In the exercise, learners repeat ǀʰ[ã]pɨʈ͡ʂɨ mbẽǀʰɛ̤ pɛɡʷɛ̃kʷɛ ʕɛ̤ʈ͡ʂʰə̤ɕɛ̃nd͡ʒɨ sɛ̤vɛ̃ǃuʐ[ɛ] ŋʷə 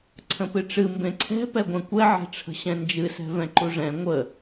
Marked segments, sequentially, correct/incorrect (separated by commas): incorrect, incorrect